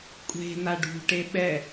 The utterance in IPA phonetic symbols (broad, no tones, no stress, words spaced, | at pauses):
kʷʼe̤na ɖṳʈe ɓɛ